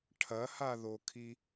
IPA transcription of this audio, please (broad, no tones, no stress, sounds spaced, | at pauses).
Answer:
ʈʰ ɐ h a ð o kʰ i